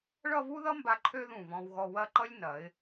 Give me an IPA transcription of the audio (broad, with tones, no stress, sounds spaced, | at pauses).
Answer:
ɭ ʌ˥˧ v u˥ ð ʌ˥ m b a˧ ǃʰ ø˥ ð ũ˧˩ v ɔ̃˧ w ɣ ɔ˧ w ɐ˥˧ ǃ ʌ˥ lʲ n ɐ˩˧ ɪ̯